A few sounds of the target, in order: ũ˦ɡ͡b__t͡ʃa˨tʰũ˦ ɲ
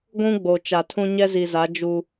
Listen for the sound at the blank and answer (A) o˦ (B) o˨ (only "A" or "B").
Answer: B